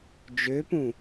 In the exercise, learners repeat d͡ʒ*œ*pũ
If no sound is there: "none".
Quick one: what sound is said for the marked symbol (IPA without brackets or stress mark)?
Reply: ø